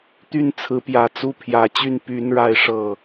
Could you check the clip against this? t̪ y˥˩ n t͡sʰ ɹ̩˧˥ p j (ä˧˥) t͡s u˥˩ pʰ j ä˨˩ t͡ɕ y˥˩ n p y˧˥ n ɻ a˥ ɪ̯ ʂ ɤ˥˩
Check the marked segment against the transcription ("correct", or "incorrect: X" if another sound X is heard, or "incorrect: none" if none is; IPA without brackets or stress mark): incorrect: ä˨˩